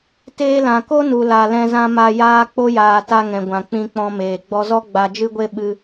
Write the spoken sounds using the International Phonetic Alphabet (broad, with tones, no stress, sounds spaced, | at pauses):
t eː˧ l ã˨ k o˦ n u˨ l a˨ l ɛ̃˧ z ã˧ m a˧ j aː˧ k͡p o˧ j aː˨ t a˧ ŋ ɛ̃˨ ɡʷ ã˨ k͡p ĩ˧ k͡p ɔ̃˧ m eː˨ ɡ͡b ɔ˧ z ɔ˦ ɡ͡b a˧ d͡ʒ ɨ˦ ɡʷ e˦ ɓ ɨ˧